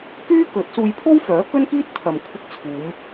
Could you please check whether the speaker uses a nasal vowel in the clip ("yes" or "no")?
no